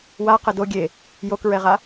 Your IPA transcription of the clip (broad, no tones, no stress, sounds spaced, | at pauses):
w a q ɛ d o ɡʲ e | j o k ɹ ɛ ʁ a